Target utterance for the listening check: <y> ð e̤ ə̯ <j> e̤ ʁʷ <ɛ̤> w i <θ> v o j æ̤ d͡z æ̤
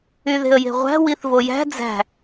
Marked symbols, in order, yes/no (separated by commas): yes, yes, no, yes